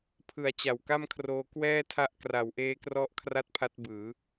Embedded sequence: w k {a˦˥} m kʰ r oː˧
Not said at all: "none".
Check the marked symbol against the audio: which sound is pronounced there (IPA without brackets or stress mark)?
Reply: a˥˩